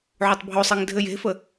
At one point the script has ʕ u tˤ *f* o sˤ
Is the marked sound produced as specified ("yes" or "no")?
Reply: no